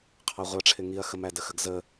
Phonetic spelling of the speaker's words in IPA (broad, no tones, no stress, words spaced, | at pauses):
qʰɑʁʷɑʈ͡ʂʰɪ ŋiɐ̯xəmædə xəɡzə